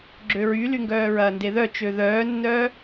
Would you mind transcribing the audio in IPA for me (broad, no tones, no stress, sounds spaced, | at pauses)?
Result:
ɡ͡ǁ ø ɹ y l y ŋ ɡ œː ɹ ɐː n d e ð œ t͡ʃ ø ð œː nː œː